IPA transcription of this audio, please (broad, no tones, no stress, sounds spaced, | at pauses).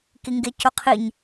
k i ŋ ɡ e c o qʰ i ɲ